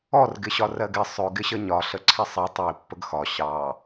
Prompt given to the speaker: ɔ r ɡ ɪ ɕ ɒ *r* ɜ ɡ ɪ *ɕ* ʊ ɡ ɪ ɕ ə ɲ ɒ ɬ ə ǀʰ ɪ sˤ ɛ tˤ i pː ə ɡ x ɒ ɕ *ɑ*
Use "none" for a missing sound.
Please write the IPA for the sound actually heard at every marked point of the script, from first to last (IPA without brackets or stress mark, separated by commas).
r, sˤ, ɑ